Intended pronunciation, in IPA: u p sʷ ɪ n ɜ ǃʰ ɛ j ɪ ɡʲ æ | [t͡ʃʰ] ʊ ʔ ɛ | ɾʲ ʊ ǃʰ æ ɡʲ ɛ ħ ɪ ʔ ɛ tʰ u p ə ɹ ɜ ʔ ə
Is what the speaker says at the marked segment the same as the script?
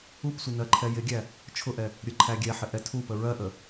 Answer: yes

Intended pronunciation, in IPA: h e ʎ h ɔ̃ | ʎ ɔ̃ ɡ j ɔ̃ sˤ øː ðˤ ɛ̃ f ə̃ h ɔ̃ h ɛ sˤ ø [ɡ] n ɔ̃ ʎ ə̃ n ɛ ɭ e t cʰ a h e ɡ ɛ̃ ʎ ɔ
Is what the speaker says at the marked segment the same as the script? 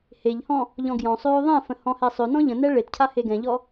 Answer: no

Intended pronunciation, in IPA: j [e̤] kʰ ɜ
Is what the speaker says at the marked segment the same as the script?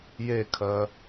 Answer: no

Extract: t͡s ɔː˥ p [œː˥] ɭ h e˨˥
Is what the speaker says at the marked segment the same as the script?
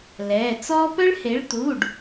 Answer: no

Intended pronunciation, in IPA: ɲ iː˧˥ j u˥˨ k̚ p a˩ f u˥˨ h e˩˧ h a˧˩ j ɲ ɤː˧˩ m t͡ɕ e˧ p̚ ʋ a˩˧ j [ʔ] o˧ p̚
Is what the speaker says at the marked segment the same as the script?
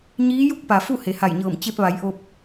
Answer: yes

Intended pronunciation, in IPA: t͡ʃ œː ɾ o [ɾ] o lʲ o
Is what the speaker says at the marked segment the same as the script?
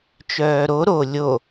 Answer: yes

